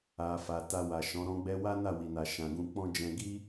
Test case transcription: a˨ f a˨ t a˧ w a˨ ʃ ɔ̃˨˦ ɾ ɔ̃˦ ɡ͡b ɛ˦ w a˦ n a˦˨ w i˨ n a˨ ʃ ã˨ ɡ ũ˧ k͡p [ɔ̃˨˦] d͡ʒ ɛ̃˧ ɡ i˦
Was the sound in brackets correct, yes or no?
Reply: no